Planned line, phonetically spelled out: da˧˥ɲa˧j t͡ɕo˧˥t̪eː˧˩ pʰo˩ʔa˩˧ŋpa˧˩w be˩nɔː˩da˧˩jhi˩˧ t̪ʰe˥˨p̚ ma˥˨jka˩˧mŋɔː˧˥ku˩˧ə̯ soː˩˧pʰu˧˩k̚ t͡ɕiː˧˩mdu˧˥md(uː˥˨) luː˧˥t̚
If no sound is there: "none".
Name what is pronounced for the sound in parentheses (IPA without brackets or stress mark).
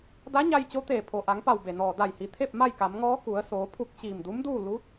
uː˥˨